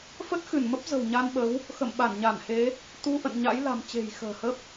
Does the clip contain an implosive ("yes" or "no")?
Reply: yes